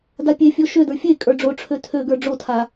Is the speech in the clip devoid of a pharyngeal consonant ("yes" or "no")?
yes